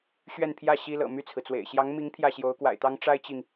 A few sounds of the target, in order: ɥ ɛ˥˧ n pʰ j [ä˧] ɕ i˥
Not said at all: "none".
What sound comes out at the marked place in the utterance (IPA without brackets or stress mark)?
ä˥˩